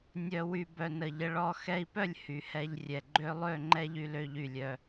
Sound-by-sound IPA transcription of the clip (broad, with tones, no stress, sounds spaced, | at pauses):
nʲ œ˨ w y˨ b œ˨ n ə˨ ʎ ə˧ ɭ ɔ˦˨ x ɛ˧ i̯ p œ˦˨ lʲ h y˨ h ɛ˧ ʎ rʲ ɛ˨ ɡ͡ǃ ø˦ lˠ ø˦˨ ŋ͡ǃ ɛ˦ ʎ y˧ l ø˧ ʎ y˨ lʲ œ˧